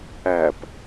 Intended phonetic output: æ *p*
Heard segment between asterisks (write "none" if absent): p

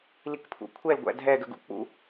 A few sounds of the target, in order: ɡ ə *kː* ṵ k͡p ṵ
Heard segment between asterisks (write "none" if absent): ɡ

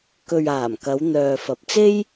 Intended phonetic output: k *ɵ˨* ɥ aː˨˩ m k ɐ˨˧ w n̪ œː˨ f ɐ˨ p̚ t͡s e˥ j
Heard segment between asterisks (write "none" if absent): ɵ˨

